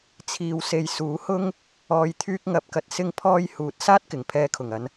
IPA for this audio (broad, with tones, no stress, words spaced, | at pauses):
t͡sʰiː˨wse˨j suː˨˥hʊ˥ŋ | ɔː˨jt̪ʰyː˧k̚ ŋɐ˨˥p̚kɐ˨t̚ sɪ˥ŋpʰɔː˥j huː˨˥t̚saː˥t̚kɪ˨˩ŋ pʰɛː˨kʰʊ˨˩ŋɐ˨˧n